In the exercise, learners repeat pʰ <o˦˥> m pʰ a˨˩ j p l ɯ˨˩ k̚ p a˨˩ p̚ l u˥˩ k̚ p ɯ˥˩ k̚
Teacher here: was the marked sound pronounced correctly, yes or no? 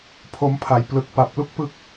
yes